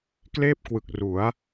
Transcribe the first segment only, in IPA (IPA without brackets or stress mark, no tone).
k